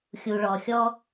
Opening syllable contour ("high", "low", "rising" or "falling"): low